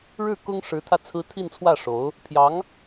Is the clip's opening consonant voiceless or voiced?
voiced